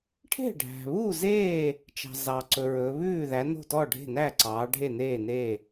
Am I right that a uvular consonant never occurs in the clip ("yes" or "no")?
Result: yes